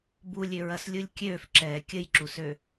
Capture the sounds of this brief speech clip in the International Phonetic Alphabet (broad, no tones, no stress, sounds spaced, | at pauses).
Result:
b u lʲ ø ɹ ɐ s lʲ u lʲ kʲ ø f ǁ ɛː kʲ ə j ǁ u s ø